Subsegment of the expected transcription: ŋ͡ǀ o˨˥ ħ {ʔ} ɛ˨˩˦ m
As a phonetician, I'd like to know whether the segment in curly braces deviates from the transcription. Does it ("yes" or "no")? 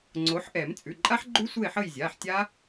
no